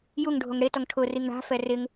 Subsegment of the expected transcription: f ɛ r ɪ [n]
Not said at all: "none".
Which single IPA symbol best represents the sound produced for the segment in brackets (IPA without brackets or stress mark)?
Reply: ŋ